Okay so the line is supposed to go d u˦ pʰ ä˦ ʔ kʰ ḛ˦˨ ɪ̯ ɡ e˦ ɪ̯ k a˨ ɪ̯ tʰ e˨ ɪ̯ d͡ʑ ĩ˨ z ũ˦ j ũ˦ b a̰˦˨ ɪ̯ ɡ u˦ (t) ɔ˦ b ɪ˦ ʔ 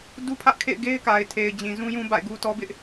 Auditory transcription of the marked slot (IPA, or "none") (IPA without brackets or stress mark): t